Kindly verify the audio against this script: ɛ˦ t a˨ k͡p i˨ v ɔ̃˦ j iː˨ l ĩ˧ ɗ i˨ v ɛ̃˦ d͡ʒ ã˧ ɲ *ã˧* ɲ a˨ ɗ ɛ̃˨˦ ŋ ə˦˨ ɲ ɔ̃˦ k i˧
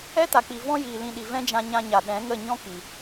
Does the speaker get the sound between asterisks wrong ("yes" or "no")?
no